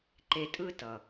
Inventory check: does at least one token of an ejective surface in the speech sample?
yes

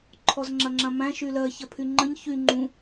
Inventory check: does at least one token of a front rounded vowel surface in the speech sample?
yes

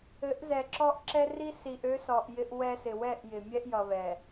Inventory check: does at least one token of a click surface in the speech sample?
yes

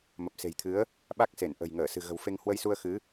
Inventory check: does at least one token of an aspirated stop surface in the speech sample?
yes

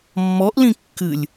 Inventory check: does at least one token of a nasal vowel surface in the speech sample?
yes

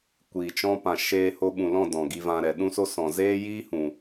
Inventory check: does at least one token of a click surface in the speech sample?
no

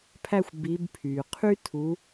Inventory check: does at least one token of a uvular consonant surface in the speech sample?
yes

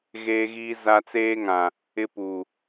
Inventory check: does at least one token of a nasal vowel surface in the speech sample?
yes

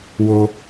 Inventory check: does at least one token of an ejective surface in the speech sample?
no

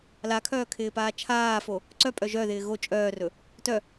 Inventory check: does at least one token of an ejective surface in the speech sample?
yes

